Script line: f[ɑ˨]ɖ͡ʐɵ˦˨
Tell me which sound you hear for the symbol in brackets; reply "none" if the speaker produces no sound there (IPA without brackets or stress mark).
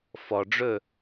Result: ɔ˨